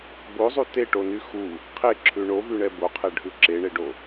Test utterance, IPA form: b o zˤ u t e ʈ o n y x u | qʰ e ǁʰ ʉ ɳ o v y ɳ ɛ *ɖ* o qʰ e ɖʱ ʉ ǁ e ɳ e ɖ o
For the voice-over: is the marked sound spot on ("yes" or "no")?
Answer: no